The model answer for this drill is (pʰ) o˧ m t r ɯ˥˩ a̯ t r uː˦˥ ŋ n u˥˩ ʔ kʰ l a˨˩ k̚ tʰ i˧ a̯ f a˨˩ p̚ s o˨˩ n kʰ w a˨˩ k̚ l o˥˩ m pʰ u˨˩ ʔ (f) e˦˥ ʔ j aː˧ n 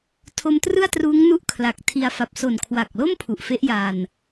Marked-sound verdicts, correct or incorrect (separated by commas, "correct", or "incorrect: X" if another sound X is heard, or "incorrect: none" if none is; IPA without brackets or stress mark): incorrect: tʰ, correct